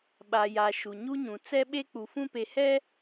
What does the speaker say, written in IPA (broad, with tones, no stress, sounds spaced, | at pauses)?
ɓ a˨ j a˨ ʃ u˨ ɲ u˦ ɲ ũ˨ t͡s ɛ˦ ɓ e˦ k͡p u˨ f ũ˦ p e˨ h ɛ˦